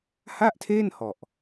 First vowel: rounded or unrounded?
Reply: unrounded